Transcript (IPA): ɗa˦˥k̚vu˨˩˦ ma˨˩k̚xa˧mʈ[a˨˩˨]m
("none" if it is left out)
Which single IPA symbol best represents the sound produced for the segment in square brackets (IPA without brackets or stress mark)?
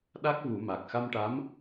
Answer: a˧˥